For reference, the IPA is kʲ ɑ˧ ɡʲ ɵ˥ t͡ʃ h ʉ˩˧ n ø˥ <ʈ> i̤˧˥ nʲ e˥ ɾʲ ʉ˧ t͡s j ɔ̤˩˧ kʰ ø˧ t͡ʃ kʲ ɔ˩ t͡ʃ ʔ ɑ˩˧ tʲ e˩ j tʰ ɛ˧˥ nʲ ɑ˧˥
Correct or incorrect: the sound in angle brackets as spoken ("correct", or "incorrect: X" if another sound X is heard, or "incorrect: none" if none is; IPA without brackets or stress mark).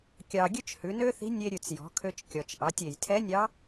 incorrect: θ